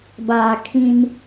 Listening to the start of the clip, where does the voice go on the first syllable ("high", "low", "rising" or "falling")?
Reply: low